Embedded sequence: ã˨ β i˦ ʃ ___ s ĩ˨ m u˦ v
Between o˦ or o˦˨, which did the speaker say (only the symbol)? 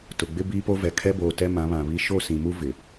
o˦˨